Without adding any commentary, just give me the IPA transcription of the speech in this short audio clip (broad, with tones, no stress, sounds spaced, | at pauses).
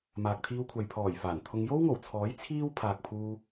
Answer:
m aː˨ k̚ t̪ʰ iː˧ w kʷʰ ɐ˨ j pʰ ɔː˨˩ j f aː˨˩ n t̪ʰ ʊ˧ ŋ j o˥ w ŋ o˨˩ w t͡sʰ ɔː˨˥ j t͡sʰ iː˥ w pʰ aː˨ k̚ pʰ uː˧